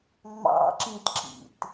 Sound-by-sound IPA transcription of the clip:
ŋ͡mɑ̰ǁĩtǁḭt

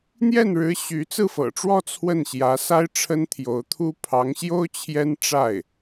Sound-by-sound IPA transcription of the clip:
n̪jɛ˥˩nɻɻ̩˧˥ ɕy˧˥t͡sɹ̩˥˩fɤ̰˨˩ʈ͡ʂwɔ˥˧ t͡sʰwə˥˩nɕjä˧˥sa˥ɪ̯ ʈ͡ʂʰə˥nt̪ʰjo˧˥ʊ̯t̪ʰu˥ pʰɑ˧˥ŋɕjo˥ʊ̯ t͡ɕʰjɛ˥nʈ͡ʂa˥˩ɪ̯

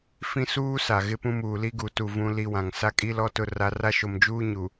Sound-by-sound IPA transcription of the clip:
fĩ˦suː˦sa˨ ɣɪ˦pũ˦muː˨ li˦ɡu˨tu˨ vũ˦li˦wã˨ŋ sa˦kʼi˦ lɔ˦ tʊ˦ra˦ ra˦ʃo˨md͡ʒuː˦ ɲu˨

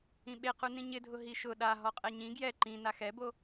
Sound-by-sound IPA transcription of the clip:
ĩɓequ nĩɲɪdʱʊ ɦiʃʊ ɗaɦɔ qʼɛɲĩ ɡjɛ ǃĩ naxɛbo

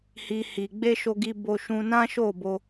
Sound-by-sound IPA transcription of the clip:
hi˨hi˨ɡ͡be˧ ʃo˧ɡi˧ bo˧ ʃũ˧ nã˦ʃo˦˨bo˧

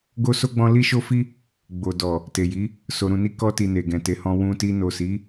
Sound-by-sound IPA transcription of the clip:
ɡo˦so˦ɡ͡bɔ̃˦ li˦ʃo˦fi˦ | ɡ͡bo˨dɔ˨ | te˨ji˨˦ | so˧ɾũ˧ni˦ kɔ˧ti˨ ne˨ɡɛ̃˨te˨˦hɔ̃˧ wũ˧ti˧ no˨si˨˦

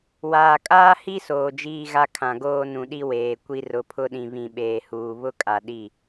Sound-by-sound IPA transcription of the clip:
waː˨kʼaː˦hi˦ soː˨d͡ʒiː˦ɣa˦ kʰã˨ɡoː˦nũ˨ɗi˦ weː˨kʷi˦ rʊ˨ pʰʊ˦ɗĩ˨ βĩ˨ɓeː˨huː˨ βʊ˦kʼa˨ ɗi˦˨

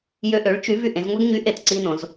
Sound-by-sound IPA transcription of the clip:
jø˧ʔø˩˥ɭt͡ʃy˩˥ vy˧ʔẽ˩˥zŋʷɛ˥ɡ ɲy˩˥ʔe˩t ǀi˥nõ˩˥z

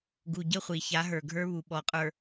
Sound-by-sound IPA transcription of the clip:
ɡu˨ɟə˦˨χʷi˨ ça˨˦ɦə˞˨ ɡʱə˞˦βu˨ ɓɔ˨qʼə˞˨

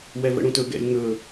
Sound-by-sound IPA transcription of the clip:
wɛvə̰ɽũtɵ ɡɛ̰lʲ ŋɵ

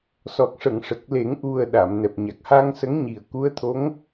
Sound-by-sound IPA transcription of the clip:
sɔ˨˩k̚ʂə˨˩˨ŋʂə˨˩k̚le˨˩˦ŋ ʔu˨˩ə̯ ɗa˨˩˨m nɛ˨˩p̚ɲa˨˩k̚haː˧ŋsə˧˥ŋ ɲi˨˩ə̯ku˧˥ə̯t̪ʰo˧˥ŋ

